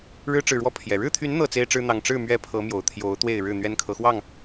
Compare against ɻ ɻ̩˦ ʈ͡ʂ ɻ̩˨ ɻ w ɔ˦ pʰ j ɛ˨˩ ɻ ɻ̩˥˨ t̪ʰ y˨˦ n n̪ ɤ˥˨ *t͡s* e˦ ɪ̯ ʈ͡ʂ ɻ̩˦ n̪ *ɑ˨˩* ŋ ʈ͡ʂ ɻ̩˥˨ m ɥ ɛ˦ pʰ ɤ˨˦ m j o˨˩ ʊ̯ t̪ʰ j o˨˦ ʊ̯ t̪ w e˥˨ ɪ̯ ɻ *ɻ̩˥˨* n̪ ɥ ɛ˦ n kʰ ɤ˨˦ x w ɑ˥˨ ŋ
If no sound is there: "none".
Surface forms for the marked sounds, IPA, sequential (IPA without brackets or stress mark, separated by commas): t͡s, ɑ˨˩, ɻ̩˥˨